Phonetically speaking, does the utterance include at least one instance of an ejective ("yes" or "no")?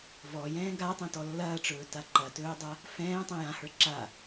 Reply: no